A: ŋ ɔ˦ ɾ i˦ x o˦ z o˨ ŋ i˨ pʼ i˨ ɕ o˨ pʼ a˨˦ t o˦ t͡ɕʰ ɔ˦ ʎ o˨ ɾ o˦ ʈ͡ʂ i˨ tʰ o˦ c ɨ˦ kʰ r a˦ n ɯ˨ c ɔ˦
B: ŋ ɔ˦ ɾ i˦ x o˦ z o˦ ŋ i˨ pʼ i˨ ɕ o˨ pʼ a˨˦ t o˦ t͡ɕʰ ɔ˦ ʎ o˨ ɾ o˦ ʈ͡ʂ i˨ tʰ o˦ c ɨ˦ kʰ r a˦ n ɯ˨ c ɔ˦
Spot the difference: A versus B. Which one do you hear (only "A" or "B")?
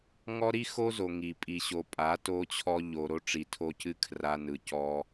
A